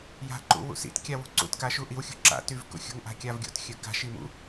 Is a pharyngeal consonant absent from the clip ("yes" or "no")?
yes